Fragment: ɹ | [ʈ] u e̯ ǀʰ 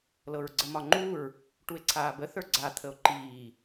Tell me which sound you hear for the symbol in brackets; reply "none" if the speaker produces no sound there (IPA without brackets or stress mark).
ʈ